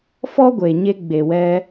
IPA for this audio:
f ɔ˦ ɡʷ e˨ ɲ e˧ ɡ͡b e˨ w ɛ˧

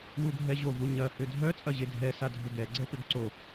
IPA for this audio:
w u ɡʱ ɛ ʑ o v u ɲ ɐ h ʏ dʱ œ t͡sʼ ɐ ʑ e dʱ ɛ s a dʱ ʏ ɡ ɛ ɡ͡ǀ ɛ p ʏ ɡ ǀ o

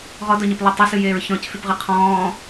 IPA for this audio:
ʁ ɔ d ɔ ɲ ɨ p lˠ e tˤ ə s ɨ j eː ɹ ç ɔ̃ c f y p ʁ ɨ qʰ ɔ̃ː

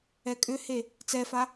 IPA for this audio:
ɛ kʼ ʏ h e | t͡s ɛ f a

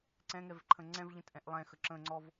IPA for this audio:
ǀ ɛ̃ ŋ ɛ v ǃʰ ə̃ ŋ͡ǀ ɛ̃ v ʎ ə̃ t ʔ ɛ̃ ʔ lˠ ɛ̃ x ə ǁ ə̃ ŋ͡ǀ ɔ v

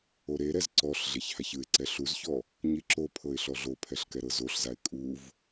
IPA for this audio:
o ɾ e ɾ ɛ z ǀ ɔ ɬ ɮ e ç h a ç ɯ ɪ̯ ǀ ɛ ɬ u z ç ɔ | ɲ i ǁ o pʰ ɤ ɪ̯ ɬ ɔ ɮ o pʰ ɛ ɬ k ɛ ɾ ɤ z o ɬ z a ɪ̯ kʼ u v

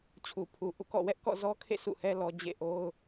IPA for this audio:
t͡ɕʰ u˨ pʰ u˨ ʔ ṵ˦˨ k ɔ̰˦˨ w ɛ˦ ʔ k ɔ̰˦˨ z ɔ˦ kʰ ḛ˦˨ sʰ ṵ˦˨ h ɛ˦ l ɔ˦ d͡ʑ ḛ˦˨ ʔ o˦ ʊ̯

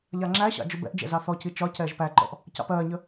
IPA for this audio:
ʎ ɑ ŋ͡ǁ æ ɕ ɑ̰ d͡ʒ ʊ b ɛ̰ ʔ d͡ʒ ɛ̰ z ɑ θ ɔ c i t͡ʃ ɒ c ɛː ʒ p æ ǃ ɔ̰ ʔ | c ɑ̰ p ɜː ɲ ə

